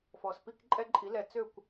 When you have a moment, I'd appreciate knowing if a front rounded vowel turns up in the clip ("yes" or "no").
yes